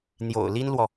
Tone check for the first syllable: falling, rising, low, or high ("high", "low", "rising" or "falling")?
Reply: low